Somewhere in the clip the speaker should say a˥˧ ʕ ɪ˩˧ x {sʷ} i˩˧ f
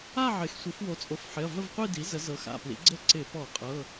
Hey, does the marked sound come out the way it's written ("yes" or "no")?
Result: yes